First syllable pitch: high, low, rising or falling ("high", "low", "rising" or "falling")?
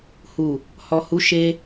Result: low